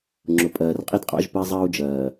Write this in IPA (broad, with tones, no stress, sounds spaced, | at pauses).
ŋ͡ǁ ʊ˨ pʼ ɜː˨ r qʼ i˦ d qʼ ɑ̰˦ ʒ p ə˦ i̯ zˤ ɜː˦ u̯ d͡ʒ ɜː˨